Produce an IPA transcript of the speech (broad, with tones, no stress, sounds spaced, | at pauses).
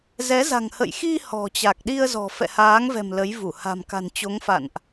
z ɛ˨˦ z a̤˨˩ ŋ h ə̰˧˨ j x i˧ h ɔ̤˨˩ t͡ɕ a˨˩ k̚ ɗ i˧ ə̯ z ɔ̤˨˩ f ɛ̰˧˨ h aː˨˦ ŋ v ɛ̤˨˩ m l ə˨˦ j v u˧˩ h a̤˨˩ m k a̤˨˩ n t͡ɕ o˨˦ ŋ f a̰˧˨ n ʔ